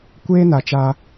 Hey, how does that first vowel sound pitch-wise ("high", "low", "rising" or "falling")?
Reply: high